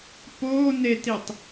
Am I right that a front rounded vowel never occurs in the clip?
yes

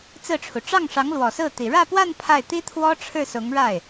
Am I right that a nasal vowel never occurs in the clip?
yes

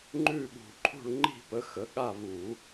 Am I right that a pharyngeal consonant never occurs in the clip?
yes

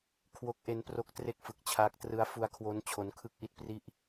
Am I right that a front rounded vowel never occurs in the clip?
yes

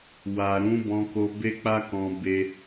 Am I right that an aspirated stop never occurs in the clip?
yes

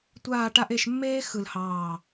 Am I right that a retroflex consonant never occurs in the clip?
no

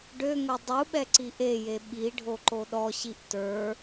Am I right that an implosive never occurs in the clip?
no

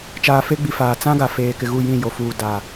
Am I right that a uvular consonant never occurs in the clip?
yes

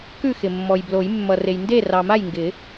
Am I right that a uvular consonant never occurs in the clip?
yes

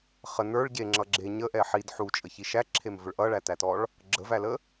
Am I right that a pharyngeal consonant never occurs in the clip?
no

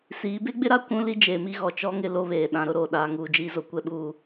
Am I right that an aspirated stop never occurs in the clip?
yes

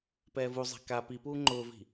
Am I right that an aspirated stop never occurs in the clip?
yes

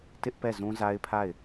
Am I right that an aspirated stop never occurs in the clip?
no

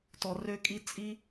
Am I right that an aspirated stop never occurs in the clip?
yes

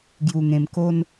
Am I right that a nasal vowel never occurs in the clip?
no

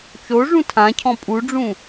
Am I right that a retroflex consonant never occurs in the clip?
no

